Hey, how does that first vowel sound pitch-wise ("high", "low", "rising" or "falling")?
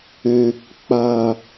low